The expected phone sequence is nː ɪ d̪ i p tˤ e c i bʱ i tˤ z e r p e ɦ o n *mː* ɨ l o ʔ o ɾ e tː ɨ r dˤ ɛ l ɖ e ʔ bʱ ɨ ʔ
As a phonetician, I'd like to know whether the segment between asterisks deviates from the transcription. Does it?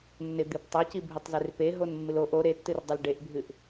no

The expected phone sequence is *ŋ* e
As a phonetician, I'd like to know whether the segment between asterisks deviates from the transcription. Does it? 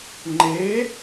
yes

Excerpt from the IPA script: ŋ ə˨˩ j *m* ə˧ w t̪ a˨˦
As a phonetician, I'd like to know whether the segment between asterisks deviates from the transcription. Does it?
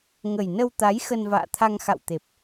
yes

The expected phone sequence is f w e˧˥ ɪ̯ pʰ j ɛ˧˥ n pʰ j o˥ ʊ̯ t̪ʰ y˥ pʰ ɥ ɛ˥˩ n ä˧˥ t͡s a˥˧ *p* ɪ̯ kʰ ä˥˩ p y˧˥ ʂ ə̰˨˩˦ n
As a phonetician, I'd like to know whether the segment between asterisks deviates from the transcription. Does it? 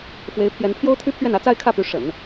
yes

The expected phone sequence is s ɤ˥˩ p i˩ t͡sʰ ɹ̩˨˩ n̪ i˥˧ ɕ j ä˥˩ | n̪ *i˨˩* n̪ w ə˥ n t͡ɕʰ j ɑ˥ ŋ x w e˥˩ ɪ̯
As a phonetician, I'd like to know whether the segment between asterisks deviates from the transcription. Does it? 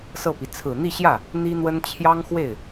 yes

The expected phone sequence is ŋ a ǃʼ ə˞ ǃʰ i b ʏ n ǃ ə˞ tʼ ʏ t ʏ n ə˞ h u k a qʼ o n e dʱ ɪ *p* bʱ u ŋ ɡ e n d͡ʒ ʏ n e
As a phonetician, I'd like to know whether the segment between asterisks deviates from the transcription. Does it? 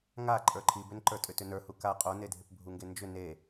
no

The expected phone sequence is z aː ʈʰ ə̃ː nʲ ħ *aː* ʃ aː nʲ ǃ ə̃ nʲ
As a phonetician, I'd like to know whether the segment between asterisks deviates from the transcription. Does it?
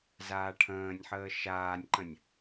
yes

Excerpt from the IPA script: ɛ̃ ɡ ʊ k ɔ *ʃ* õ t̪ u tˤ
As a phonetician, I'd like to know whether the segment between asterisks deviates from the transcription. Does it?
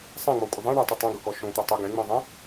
no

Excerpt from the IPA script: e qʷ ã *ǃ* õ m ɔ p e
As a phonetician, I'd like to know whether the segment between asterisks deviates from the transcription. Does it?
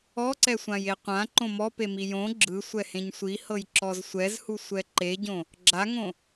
no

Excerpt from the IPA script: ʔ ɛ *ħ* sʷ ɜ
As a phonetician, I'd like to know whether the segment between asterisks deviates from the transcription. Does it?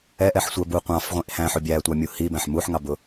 no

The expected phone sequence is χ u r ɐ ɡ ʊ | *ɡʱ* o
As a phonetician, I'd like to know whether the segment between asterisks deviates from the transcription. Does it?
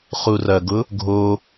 no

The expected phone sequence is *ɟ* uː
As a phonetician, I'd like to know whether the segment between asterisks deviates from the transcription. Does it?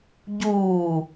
no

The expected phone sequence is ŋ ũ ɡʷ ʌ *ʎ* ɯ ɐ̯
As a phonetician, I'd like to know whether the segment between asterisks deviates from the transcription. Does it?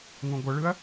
yes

